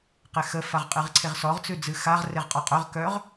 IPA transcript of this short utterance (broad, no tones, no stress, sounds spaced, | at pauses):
q e x ə f a ʁ qʼ ɨ ʁ ǀʰ e ʁ s ɔ ʁ t͡s ʉ d͡z ɨ x a ʁ r e ʁ qʼ ɔ qʼ œ ʁ k œ ʁ